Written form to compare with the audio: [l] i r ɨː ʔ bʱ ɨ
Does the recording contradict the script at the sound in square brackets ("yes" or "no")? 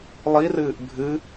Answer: yes